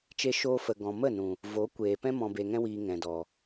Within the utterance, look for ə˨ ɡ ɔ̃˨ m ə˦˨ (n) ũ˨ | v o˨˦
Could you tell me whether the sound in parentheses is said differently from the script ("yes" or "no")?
no